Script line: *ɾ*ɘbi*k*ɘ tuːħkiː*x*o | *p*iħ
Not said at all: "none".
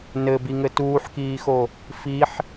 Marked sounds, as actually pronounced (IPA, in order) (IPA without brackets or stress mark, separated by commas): n, ŋ, x, f